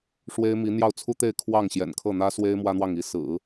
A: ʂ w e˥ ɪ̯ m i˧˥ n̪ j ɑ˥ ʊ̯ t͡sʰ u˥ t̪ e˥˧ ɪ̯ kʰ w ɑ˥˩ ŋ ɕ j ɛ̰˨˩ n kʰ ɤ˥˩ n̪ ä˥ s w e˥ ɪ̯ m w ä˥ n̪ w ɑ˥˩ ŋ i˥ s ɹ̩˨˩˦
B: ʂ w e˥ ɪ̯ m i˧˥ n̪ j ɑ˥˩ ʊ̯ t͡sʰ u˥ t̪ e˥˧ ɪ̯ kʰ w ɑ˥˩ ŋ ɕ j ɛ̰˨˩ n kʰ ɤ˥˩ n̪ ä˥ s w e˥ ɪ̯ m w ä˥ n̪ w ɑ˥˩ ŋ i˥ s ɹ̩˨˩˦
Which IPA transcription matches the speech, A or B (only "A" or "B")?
B